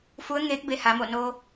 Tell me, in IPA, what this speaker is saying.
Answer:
fu˧˥ə̯ŋeː˧˥k̚be˧ ha˩˧mo˧˩no˧

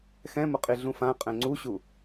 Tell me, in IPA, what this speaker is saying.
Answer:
xɛ̃mʊ qʼiɮũfã qʼɛ̃ŋ͡ǀuɕu

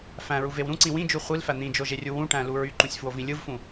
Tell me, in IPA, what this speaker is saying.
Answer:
fæ̃ɹuvew ɾũǀĩ wĩd͡ʒu χʷilfæ n̪ĩd͡ʒoʒerʲu wũʈæ̃lu ɹyǃũsʲfwovĩ lʲɯvfũ

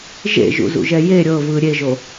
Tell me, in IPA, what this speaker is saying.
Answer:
ʒḛʒṵzṵʒɛ je ɾʲɤvɯ ɾʲeʒo

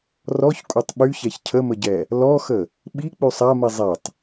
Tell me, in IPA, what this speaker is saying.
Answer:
rɔçkʷʼœtˤ ɓyçɛç cʰəməɟɛ | lɔxə | ɓik͡py sˤami zˤetˤ

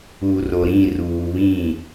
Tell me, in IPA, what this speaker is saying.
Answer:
u˨ro˨ɾĩ˦˨ ruː˨βĩ˦˨

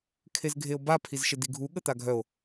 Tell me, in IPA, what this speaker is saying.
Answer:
kʰezɡʱeo̯ba pʰizʃediɡʱu ɠət̪aɡʱœo̯

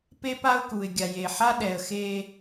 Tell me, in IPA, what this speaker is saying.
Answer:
pe˦pa˦ʊ̯ku˨ɪ̯ ɡʲa˨je˨ħa˦ ɗɛ˨ə̯xe˦

